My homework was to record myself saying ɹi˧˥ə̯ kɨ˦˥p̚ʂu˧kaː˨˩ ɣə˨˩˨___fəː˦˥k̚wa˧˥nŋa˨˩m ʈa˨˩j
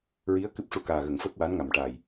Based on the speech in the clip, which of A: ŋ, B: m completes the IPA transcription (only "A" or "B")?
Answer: A